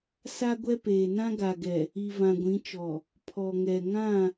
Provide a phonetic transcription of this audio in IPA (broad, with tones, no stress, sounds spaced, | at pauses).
s a˦ ɡʷ ɛ˦ p eː˨ n ã˦ ɡ a˨ ɡ ɛ˨ | i˨ v ã˨ ɡʷ ĩ˨˦ t͡ʃ ɔ˨ | pʰ ɔ˨ ŋ ɛ˨ ŋ ã˦˨